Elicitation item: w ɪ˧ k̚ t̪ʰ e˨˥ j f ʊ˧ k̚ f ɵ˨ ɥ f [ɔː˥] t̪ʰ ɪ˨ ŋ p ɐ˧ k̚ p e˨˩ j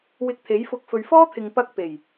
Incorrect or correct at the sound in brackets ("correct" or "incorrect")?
correct